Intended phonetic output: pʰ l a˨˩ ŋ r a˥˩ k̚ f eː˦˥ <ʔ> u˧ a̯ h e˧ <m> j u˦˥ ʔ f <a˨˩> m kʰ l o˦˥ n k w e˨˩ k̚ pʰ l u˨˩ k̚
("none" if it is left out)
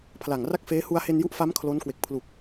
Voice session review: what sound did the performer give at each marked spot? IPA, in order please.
h, n, a˦˥

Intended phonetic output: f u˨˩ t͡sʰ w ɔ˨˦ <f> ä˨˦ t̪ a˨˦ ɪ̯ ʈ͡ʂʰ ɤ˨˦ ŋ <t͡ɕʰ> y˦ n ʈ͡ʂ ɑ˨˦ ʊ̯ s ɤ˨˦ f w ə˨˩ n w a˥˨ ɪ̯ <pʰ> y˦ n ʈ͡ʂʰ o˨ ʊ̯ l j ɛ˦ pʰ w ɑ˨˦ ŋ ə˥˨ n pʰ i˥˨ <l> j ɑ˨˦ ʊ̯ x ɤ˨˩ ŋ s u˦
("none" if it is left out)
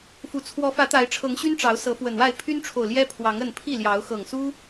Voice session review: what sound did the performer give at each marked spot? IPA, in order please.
f, ɕ, pʰ, l

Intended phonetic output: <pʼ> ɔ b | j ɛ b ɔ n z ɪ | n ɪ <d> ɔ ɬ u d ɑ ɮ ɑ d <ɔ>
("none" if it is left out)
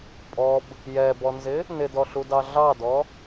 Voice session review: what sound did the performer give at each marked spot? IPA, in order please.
pʼ, d, ɔ

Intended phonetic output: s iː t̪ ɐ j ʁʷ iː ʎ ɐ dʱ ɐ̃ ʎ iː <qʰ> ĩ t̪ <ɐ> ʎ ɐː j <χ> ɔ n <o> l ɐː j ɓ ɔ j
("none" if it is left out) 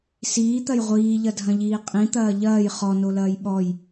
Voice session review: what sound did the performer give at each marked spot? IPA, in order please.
qʼ, ɐː, χ, o

